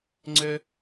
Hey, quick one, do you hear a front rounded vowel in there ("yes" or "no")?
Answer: yes